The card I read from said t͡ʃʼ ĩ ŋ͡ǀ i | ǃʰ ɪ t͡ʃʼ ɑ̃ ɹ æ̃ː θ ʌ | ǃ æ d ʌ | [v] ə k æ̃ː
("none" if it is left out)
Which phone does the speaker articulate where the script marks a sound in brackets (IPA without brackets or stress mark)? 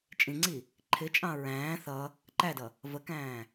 v